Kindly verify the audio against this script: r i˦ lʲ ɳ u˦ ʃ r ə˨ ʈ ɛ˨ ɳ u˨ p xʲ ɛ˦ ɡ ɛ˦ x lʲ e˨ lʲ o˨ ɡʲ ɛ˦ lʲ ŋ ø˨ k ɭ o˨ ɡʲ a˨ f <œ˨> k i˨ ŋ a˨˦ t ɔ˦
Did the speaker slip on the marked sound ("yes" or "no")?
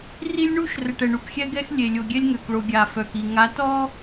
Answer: no